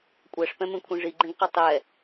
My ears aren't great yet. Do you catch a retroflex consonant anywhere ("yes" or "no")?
yes